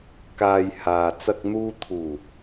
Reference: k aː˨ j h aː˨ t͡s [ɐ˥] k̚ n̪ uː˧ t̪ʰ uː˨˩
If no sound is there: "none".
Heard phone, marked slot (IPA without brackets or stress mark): ɐ˧